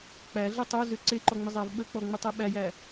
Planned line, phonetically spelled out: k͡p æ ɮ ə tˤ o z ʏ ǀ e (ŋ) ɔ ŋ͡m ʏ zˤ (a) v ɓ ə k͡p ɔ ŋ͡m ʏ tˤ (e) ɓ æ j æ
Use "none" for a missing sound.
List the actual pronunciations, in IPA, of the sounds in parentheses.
ǃ, æ, e

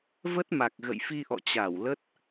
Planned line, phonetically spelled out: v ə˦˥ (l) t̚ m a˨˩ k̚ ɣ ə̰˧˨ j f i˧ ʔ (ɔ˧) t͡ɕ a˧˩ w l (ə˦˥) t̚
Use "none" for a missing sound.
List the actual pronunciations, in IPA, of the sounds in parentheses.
none, ɔ̰˧˨, ə˦˥

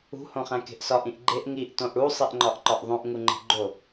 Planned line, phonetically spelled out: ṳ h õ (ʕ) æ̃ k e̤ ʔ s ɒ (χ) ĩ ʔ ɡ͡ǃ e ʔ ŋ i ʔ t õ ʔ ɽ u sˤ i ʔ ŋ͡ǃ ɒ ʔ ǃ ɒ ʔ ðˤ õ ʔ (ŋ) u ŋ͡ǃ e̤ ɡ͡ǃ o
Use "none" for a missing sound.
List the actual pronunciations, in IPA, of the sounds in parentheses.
χ, ʔ, ŋ

